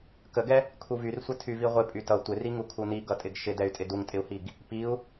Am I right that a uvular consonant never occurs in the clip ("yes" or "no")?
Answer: no